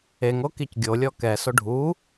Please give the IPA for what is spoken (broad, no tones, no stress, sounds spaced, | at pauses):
e ŋ o k i c ɡʲ o lʲ ɔ k ɛ s o ɖʱ u